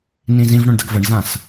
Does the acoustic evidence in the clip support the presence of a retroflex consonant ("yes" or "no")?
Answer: yes